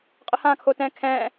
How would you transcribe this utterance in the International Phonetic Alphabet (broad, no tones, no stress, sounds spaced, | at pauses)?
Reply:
qʼ ə h ãː kʰ oː t ɛ̃ː kʰ ɛ̃ː